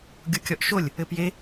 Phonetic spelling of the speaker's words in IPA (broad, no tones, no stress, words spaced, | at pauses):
ɡʲukʲɔʔʃolʲ | ɘpje